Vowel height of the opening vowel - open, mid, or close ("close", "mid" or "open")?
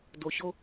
mid